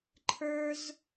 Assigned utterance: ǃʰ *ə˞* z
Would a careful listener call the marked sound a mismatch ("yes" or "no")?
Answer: no